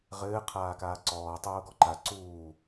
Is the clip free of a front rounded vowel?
yes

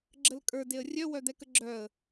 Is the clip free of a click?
no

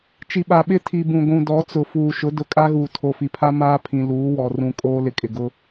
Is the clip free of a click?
yes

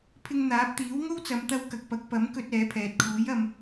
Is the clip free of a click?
yes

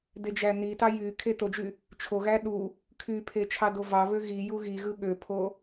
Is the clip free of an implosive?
no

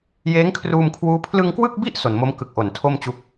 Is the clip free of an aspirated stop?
no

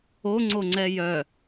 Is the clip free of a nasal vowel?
yes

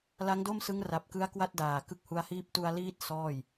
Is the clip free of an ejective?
yes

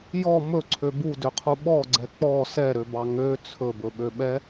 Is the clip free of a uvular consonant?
no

